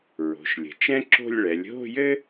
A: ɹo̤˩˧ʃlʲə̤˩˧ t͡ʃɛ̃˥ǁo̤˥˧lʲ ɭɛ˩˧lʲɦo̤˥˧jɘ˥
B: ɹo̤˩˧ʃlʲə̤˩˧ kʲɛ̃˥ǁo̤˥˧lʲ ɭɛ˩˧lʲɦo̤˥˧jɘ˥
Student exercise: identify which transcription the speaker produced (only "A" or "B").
A